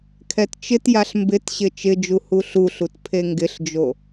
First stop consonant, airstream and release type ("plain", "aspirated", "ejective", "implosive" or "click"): aspirated